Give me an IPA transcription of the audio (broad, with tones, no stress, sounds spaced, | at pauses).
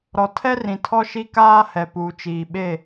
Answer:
ɾ ɔ˨ tʰ ɛ˦ r ĩ˨ tʰ ɔ˦ ʃ i˦ k aː˦ h ɛ˨ p uː˨ t͡ʃ iː˨ ɓ e˦˨